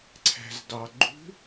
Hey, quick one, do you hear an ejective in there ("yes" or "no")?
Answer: no